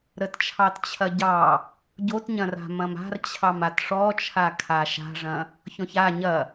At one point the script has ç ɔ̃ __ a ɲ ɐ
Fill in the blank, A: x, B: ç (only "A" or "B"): B